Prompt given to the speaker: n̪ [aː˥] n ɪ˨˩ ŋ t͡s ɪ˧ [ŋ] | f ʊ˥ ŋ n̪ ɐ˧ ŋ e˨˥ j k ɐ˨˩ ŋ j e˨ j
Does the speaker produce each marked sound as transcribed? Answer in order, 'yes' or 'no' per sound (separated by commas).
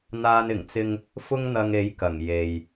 no, yes